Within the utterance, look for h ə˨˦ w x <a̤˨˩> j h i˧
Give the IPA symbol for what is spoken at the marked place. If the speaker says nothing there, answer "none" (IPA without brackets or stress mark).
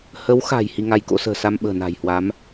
a̤˨˩